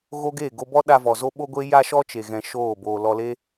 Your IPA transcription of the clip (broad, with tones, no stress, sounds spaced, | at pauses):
ɣ o˦ ɡ e˦˨ ɡ o˧ b ɔ˦ ɗ a˧ v ɔ˨ z o˦ ɓ o˦ ɡʷ e˦ j a˦ ʃ ɔ˦ t͡ʃ e˨ ɣ ɛ̃˧ ʃ oː˦˨ b oː˧ l ɔ˧ l e˦